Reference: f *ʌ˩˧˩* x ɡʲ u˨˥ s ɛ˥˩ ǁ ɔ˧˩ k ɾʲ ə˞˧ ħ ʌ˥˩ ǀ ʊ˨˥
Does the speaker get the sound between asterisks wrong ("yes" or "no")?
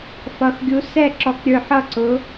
no